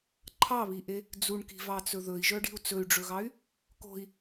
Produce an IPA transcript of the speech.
ǃʰ ɑ β i ʔ e | d͡z u ɳ k i̤ v ɑ t͡s ɵ ð ɵ i̯ ʒ œ ɖ i̤ u̯ t͡s ɵ y̯ ɖ͡ʐ ɵ ɣ ɑ y̯ | k o̤ i̯

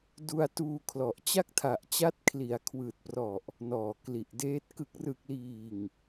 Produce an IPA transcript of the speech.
d u˧ a̯ t uː˧ kʰ l ɔ˨˩ ʔ t͡ɕ a˥˩ k̚ tʰ a˨˩ ʔ t͡ɕ a˦˥ t̚ kʰ l i˩˦ a̯ kʰ w ɯː˨˩ t̚ p r ɔ˨˩ ʔ | n ɔː˨˩ k l i˨˩ ʔ d eː˦˥ t̚ k ɯ˨˩ k̚ r ɯ˨˩ k̚ l iː˨˩ ŋ

